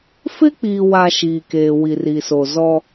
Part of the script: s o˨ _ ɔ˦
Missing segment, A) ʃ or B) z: B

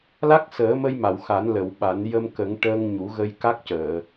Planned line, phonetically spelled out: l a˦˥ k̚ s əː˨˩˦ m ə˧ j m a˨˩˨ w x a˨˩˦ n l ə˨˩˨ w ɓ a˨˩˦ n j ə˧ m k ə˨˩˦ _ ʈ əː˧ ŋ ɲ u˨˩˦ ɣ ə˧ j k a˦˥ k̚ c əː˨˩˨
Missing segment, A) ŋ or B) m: A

